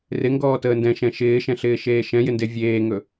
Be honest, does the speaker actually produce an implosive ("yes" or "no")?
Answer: no